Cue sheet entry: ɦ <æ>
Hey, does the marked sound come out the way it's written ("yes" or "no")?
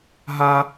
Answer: no